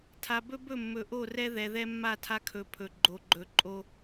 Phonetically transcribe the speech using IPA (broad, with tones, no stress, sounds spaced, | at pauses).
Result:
tʰ a˨ b ɵ˦ b ɵ˦˨ mː ɵ˨ ʔ o˦˨ r ɛ˦ ð ɛ˨ ð ɛ˦ mː a˦˨ tʰ a˦ kʰ ɵ˨˦ pʰ ɵ˨ ɡ͡ǃ o˨ ɡ͡ǃ ɵ˨ ǃʼ o˦